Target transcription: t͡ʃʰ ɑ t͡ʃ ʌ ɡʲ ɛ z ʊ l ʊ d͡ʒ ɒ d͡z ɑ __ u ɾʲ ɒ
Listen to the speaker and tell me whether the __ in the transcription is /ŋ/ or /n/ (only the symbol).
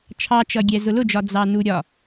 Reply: n